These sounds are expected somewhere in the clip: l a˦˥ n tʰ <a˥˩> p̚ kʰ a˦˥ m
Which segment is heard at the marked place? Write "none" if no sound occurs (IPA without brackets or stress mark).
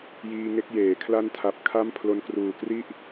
a˨˩